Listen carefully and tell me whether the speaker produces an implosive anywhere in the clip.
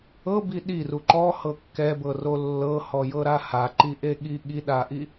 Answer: yes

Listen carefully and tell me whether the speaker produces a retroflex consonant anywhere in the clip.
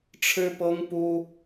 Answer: yes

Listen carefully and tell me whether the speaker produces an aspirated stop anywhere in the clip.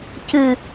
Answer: no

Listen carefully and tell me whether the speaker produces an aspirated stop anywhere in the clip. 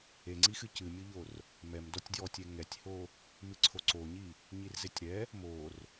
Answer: yes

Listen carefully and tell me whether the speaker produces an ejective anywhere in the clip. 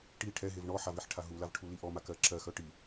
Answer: no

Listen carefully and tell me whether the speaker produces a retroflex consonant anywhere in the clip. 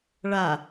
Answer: yes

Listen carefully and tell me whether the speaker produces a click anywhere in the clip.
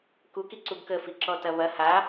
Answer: yes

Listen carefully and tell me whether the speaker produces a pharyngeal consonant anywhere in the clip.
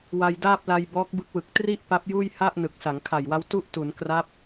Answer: no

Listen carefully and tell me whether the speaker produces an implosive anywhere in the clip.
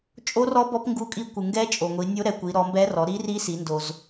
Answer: no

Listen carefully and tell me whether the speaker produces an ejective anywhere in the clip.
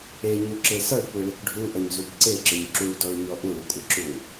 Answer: yes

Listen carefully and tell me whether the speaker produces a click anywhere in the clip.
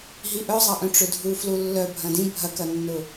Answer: no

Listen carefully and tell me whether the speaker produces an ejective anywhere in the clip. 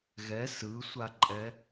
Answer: yes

